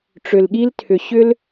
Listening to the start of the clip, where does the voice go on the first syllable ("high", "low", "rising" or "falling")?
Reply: low